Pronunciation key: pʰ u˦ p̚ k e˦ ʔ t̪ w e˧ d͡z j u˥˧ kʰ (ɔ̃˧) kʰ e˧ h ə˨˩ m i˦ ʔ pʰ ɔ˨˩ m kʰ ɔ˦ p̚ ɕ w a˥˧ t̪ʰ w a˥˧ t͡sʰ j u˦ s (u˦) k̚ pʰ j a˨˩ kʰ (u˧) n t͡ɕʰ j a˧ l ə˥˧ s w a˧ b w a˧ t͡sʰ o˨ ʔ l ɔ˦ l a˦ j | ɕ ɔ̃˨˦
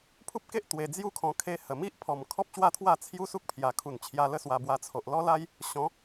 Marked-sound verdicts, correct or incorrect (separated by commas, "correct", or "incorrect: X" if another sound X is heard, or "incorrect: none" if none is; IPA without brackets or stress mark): correct, correct, incorrect: u˨˩